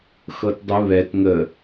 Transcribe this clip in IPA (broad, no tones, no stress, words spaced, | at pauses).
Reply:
xɤtdˤɨ βɛt ŋə